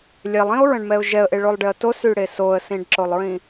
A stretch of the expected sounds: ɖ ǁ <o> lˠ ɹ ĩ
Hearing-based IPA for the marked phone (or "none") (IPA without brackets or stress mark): o